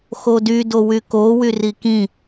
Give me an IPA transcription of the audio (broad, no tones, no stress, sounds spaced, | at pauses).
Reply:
x o d y d o w y k o w y r i k ĩ